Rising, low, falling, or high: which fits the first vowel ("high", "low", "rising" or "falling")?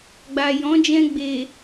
low